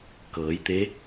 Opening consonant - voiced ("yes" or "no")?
no